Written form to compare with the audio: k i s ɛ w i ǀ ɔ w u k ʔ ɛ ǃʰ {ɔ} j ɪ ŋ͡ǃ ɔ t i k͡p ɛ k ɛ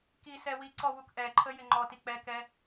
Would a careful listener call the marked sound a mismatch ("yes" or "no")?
yes